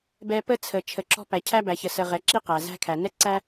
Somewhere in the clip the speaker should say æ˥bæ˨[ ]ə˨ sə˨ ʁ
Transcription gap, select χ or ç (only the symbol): ç